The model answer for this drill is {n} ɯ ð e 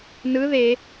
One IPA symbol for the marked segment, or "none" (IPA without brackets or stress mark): n